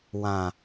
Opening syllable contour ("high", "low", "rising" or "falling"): low